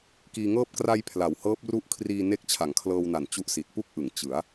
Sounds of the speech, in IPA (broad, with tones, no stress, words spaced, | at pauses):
kiː˧ŋɤː˥˩p̚ kra˧j pʰla˩˦whɤː˦˥p̚ ru˦˥ʔkʰriː˧ ne˦˥k̚t͡ɕʰa˩˦ŋkʰlɤː˧wna˨˩n t͡ɕu˦˥ʔsi˨˩t̚pu˥˩k̚ʔɯ˩˦ŋ t͡ɕɯ˩˦a̯